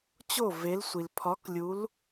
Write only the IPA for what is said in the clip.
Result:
t͡ɕ o˦˨ v e˧˥ l sʷ i˨ l pʰ ɒ˧˥ k lʲ u˧˥ l

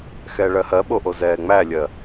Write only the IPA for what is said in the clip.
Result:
x ɛ ɭ ɜ h ɜ ɓ o ʔ o z ɛː ŋ͡m æ lʲ ɜ

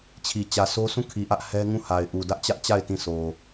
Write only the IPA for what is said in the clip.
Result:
t͡ɕʰ i˨ t͡ɕ ä˨ s o˦ s ũ˦˨ kʰ i˨ ʔ ä˦ ʔ h ɛ˦ ŋ ũ˦˨ h a˨ ɪ̯ ʔ u˨ d ä˦ ʔ t͡ɕ ä˦ ʔ t͡ɕ a˦˨ ɪ̯ t ĩ˦˨ sʰ o˨

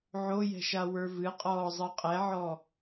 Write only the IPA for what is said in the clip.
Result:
ʕ o j ɛ̤ ʃ a w ə˞ v ɨ qʼ ɔː zˤ ɜ qʼ ɛ ʕ ɔ

